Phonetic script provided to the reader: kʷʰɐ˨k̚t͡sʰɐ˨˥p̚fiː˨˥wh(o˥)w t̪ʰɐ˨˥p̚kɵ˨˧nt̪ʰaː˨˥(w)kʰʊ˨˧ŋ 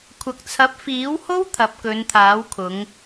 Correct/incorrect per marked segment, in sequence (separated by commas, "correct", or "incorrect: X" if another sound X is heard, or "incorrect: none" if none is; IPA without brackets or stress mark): correct, correct